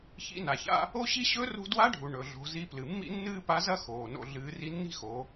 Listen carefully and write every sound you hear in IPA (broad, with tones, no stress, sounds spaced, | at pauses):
ç ḭ˧˥ n a˩ ç a̰˥ | o˥ ɕ i˥ ɕ ɵ˧˥ r ṳ˧ d w a˧˥ ɖʱ u˩ ɳ ɵ˩ ɮ o̤˩˧ z i˧ p l ɨ˩ mː ḭ˥ nː ɨː˥ p a˧˥ z ɐ˥ x oː˩ n o̰˧ ɮ ɨː˩˧ r i˧ nː i̤˥ x o˩˧